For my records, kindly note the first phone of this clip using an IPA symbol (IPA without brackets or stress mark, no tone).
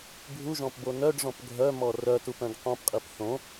bʱ